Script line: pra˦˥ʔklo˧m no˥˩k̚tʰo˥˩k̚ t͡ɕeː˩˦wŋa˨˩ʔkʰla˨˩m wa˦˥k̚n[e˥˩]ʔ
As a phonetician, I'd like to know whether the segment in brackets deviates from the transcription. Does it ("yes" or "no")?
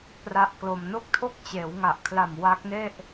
no